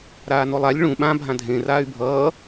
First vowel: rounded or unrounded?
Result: unrounded